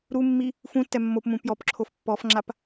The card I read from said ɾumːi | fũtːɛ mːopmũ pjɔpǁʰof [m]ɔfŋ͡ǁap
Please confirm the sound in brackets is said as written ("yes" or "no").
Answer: no